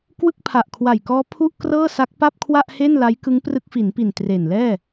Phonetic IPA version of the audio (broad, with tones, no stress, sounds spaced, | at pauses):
k w ɯ˥˩ k̚ pʰ a˨˩ ʔ kʰ w a˨˩ j k ɔː˦˥ pʰ u˥˩ ʔ k r ɤː˥˩ s a˦˥ k̚ p a˥˩ p̚ kʰ w a˥˩ ʔ h e˥˩ n l a˦˥ j k ɯ˦˥ ŋ p r ɯ˦˥ k̚ f i˩˦ n p i˨˩ n t r e˨˩ n l ɛː˥˩